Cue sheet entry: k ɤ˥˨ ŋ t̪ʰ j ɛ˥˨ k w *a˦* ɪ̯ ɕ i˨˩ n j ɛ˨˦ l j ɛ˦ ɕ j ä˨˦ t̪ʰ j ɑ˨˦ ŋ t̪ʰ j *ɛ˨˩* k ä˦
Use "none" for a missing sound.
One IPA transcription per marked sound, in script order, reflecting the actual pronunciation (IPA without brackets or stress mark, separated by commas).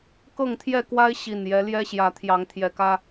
a˦, ɛ˨˩